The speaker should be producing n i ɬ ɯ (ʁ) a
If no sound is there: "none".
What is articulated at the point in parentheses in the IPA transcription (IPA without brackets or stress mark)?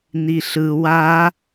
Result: w